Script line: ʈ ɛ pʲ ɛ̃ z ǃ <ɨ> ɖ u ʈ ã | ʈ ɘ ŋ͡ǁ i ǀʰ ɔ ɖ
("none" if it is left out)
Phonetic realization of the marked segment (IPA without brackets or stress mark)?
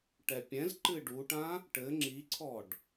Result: ɨ